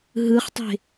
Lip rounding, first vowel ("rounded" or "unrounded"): unrounded